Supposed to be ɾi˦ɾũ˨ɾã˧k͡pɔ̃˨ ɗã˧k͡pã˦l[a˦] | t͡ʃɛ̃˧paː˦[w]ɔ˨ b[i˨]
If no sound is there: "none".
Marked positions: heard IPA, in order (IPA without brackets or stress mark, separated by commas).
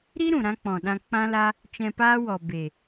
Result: a˦, w, e˨